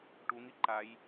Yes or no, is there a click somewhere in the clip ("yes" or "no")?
yes